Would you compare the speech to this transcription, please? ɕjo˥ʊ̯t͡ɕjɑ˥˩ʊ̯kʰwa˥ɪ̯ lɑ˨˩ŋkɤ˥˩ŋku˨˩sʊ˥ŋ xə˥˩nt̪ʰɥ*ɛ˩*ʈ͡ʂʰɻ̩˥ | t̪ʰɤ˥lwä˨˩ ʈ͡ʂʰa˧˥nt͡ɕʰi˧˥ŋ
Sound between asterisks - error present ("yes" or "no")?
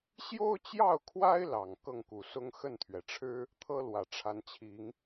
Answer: no